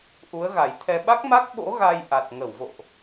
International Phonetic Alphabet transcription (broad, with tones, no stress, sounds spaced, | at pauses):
ʔ u˨˦ ə̯ ɣ a˨˩ j t̪ʰ ɛ˧ ɓ a˦˥ k̚ m a˦˥ k̚ ɓ o̰˧˥ ɣ a˧ j ʔ a˨˩ t̚ ŋ ə˧˩ w v o̰˧˨ ʔ